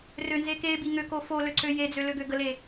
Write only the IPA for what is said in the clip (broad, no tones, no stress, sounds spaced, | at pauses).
r ø n z e k e b i ŋ ø k o f o l ø ǀ ø j e d͡z ø l ø ɡ ø ɡ ə l e